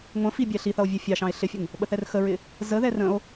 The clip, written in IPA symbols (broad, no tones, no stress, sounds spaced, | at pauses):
ŋʷ ə̃ f i bʲ æ ɬ i θ ʌ o̯ vʲ ɛ fʲ ɑ ʃ ɑ̃ e̯ ɬ ɪ fʲ ə ŋ | ɓ ə θ ɛ r x ə ɹ ɪ | z ə ð ɛ r ə̃ o̯